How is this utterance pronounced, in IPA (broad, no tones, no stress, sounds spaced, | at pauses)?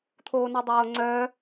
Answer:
t̪ʰ oː n ɛ dˤ oː ŋ͡ǀ œ